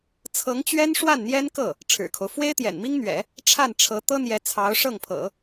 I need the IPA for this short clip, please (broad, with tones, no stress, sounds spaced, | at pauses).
t͡sʰ ɤ˧˥ ŋ t͡ɕ ɥ ɛ˥ n ʂ w a˥˩ n n̪ j ɛ˥ n k ɤ˥˩ | ʈ͡ʂʰ ɻ̩˨˩ kʰ o˦ ʊ̯ f w e˥ ɪ̯ t̪ j ɛ̰˨˩ n m i˥ ŋ n̪ ɥ ɛ̰˨˩˦ | ʈ͡ʂʰ a˥˩ n ʈ͡ʂʰ ɤ˧˥ t̪ ɤ˥ n̪ j ɛ˧˥ t͡sʰ ɑ˧˥ ʊ̯ ʂ ɤ˥˩ ŋ pʰ ɤ̰˨˩˦